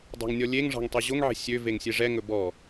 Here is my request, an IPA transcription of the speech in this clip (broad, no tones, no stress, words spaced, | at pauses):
dˤɑ̤ŋnʲɔlʲeŋ ʐɑ̤ŋtˤeʑoŋ ʕe̤sʲø veŋsʲeʐɛ ŋɵbɔ